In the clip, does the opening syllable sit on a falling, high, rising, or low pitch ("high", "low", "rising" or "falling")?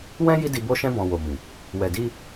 high